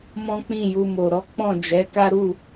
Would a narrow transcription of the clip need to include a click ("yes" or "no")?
no